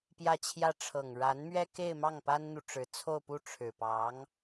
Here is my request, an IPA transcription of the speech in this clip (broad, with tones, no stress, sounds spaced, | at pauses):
p j ä˥˧ t͡ɕʰ j ä˥˩ ʈ͡ʂʰ ɤ˨˩ ŋ ɻ a˧˥ n m ɥ ɛ˥ k e˥˧ ɪ̯ m ɑ˥˩ ŋ p a˥ n n̪ u˨ ʈ͡ʂ ɻ̩˧˥ t͡sʰ o˥˧ ʊ̯ p u˥˩ ʈ͡ʂʰ ɻ̩˨˩ p ɑ˧˥ ŋ